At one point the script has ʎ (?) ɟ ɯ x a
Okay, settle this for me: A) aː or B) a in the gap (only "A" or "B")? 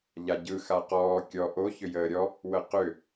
B